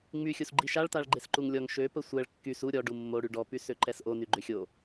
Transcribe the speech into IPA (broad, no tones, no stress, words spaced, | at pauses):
ŋ͡my xʲusɡ͡ǃiʃaɭtaɭ ɡ͡ǃesǃuŋlʲɔŋ ʃøpə sʷɛɭ kːys u ɾʲɔ ɖumːo ɽyɖɔpy søǃɛsʔo nyɡ͡ǃøxʲo